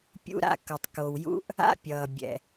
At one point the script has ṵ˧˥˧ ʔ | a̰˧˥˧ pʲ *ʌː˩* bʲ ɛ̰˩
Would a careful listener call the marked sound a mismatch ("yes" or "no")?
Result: no